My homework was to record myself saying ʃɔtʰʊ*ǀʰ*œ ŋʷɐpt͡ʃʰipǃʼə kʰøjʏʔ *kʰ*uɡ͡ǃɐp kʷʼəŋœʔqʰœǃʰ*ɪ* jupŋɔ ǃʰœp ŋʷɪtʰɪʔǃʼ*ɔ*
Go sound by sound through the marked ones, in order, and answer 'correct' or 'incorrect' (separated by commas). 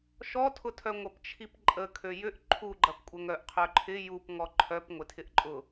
incorrect, incorrect, correct, incorrect